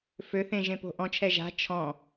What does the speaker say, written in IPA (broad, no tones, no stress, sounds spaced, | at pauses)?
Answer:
f ø θ ẽ ʒ ẽ p o̤ ʔ ɔ̃ t͡ʃʰ ɛ ʒ a̤ t͡ʃʰ ɔ̃